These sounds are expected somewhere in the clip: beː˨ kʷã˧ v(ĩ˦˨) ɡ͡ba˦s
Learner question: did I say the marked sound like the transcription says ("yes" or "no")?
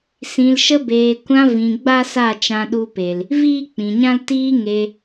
no